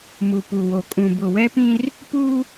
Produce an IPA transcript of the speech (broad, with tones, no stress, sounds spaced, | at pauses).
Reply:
m u˨ p u˨ w o˨ kʼ ũ˨ b ʊ˨ w ɛ˦ p ĩ˦ r | p u˦